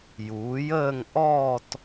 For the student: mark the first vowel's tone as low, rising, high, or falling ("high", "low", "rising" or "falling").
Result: rising